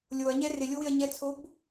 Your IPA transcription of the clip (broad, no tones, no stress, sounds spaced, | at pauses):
lʲ o ɐ̯ ɲ ɛ r ɪ lʲ o w ɪ ɐ̯ ɲ ɛ t͡sʰ o b